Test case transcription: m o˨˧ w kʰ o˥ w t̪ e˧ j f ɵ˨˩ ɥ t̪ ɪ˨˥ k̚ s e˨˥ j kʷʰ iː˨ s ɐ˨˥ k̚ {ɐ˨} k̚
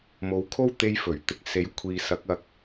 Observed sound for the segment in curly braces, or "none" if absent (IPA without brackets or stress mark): ɐ˨